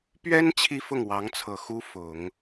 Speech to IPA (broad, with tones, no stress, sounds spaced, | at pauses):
p ɥ ɛ˥ n t͡ɕʰ i˥ f ʊ˥˩ ŋ w ɑ˧˥ ŋ t͡sʰ ɤ˨˩ x u˥ f ʊ˨˩˦ ŋ